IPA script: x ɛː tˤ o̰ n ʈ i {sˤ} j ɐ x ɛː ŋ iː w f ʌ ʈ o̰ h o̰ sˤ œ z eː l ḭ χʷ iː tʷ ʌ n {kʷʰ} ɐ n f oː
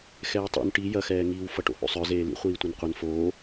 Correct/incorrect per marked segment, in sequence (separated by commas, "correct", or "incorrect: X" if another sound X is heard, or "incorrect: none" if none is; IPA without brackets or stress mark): incorrect: none, incorrect: qʷ